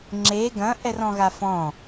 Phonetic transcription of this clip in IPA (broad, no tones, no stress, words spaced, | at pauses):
ŋ͡ǁe ɡɐ̃ ʔɛrɔ̃ɣafɔ̃